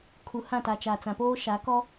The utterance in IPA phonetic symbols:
kʰ u˨ h ã˦˨ t a˨ t͡ʃ a˨ t͡s ã˨ p oː˦ ʃ a˨˦ k ɔ˦

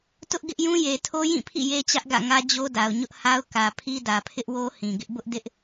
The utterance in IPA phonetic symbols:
t ʊ˦ ʔ ɡ ɪ˦ ʔ j ũ˦ j e˨ tʰ o˦ j ĩ˦˨ pʰ ḭ˦˨ j e˦ t͡ɕ ä˦ ʔ ɡ ä̰˦˨ ŋ ä˦ d͡ʑ o˦ d a˨ ʊ̯ ɲ ʊ˦ ʔ h a˦ ʊ̯ k ä˨ pʰ i˦ d ä˨ pʰ ɪ˦ ʔ w o˦ h ĩ˨ ɡ ɪ˦ ʔ b ʊ˦ ʔ d ɪ˦ ʔ

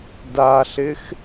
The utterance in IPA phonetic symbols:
d a ɬ ɪ x

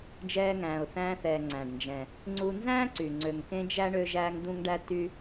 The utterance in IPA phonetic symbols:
d͡ʒ ɛː˧ ŋ æ̃ː˩ ʊ̯ θ æ̃ː˧ θ ɛː˩ ŋ͡ǀ æ̃˩ ɖ n d͡ʒ ɛ̃˩ | ŋ͡ǀ u˧ n z æ̃ː˥ ǀ y˩ ŋ͡ǀ ø˩ ŋ k ẽ˧ d͡ʒ æ˧ ɳ ø˧ ʒ æː˧ ŋ d̪ ũ˧ ŋ ɖ æ˧ t y˧

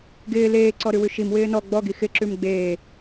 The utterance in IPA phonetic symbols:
ɡ ɪː l eː ǀ ɔ ɾ ʉ w ʉ ʃ i m w ɪː n ɔ ɡ͡b ɔ ɡ i x ɪ ǁ ʉ m ɡ͡b eː

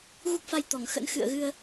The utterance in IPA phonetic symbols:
ɣ u˦˥ k̚ f a˧ j t̪ ɔ˧˩ ŋ x ə̰˧˥ n x ɨ̰˧˨ ə̯ ɣ ɨ˧ ə̯

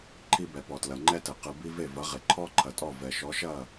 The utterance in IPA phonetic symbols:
ǃʰ i˧ b ɛ˩ p ɔ˩ t l ɐ˩ ŋ͡ǃ ɛ˥ t ɘ˩ q ɨ˩ b i˧ v e˥˩ v ɐ˩˥ ʁ e˩ ǃʰ ɔ˥ ǃʰ ɐ˩ tʼ ɔ˥˩ v ɛ˩ ʃ ɔ˩˥ ʃ ɐ˥˩

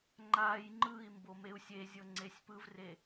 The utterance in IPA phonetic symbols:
ŋ͡ǃ a j ŋ͡ǃ ɯ i̯ m b o m e u̯ sʲ e zʲ ɤ ŋ͡ǀ e sʲ p ɯ v r e

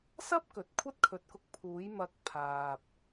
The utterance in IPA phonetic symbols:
s ɐ˥ p̚ k ɵ˨ t̚ kʷʰ ɐ˥ t̚ kʰ ɵ˨˥ t̚ k ʊ˧ k̚ pʰ uː˨˥ j m ɐ˧ k̚ pʰ aː˨ p̚

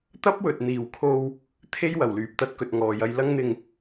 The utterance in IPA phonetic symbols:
t̪ ɐ˥ p̚ w ɵ˨ t̚ n̪ iː˨ w kʰ o˧ w | t̪ʰ e˥ j w ɐ˨˩ w l yː˨ p̚ t̪ ɐ˧ t̚ k ɵ˨ t̚ ŋ ɔː˨ j ɐ˧ j l ɐ˥ ŋ n̪ ɪ˧ ŋ

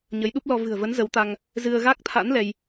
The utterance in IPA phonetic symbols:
ɲ ə˨˦ j ɗ u˦˥ p̚ l ɔ˧ v ɨ̤˨˩ ə̯ v ə˨˦ n z ə˨˦ w t̪ a˧ ŋ | z ɨ˧ ə̯ ɣ a˦˥ k̚ t̪ʰ a̰˧˥ n l ɛ˧ j

